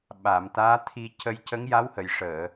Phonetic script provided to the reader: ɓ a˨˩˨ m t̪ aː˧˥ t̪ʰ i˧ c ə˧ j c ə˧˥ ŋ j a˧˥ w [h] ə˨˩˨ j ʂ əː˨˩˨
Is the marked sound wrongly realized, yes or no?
no